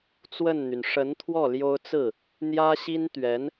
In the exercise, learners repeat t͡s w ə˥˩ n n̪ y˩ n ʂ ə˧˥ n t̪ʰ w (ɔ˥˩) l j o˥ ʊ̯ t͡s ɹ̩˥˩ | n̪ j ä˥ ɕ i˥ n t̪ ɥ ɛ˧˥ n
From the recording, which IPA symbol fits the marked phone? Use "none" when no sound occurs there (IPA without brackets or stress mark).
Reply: ɔ˥˩